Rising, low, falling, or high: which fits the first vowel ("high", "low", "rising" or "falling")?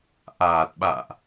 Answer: low